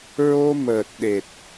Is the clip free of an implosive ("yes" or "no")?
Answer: no